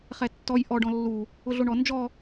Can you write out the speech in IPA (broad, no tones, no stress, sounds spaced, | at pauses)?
χ ɛ tː ɔ j ʔ ɔ ɖ ɔ̃ lː u | ʊ ɮ o ɳ ɔ n d͡ʒ ɔ